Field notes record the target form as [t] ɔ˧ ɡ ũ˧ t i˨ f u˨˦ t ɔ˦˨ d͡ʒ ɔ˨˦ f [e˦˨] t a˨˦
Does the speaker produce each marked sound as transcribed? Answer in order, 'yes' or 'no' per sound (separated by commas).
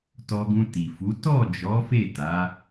yes, yes